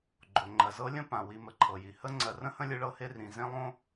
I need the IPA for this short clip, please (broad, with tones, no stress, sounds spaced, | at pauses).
ɡ͡ǃ o˩ ŋ͡ǃ ɜ˩ z ɤ˦ lʲ ə̃˥ p ã˩ w i˨ m ə˨ ǃʰ ɤ˩ j i˩ h ə˦ ŋ͡ǀ ɜ˨ r ə̃˥ h ə̃˦ lʲ ɯ˦ ɭ ɤ˦ h e˦ r ĩ˨ z ẽ˥ lˠ õ˥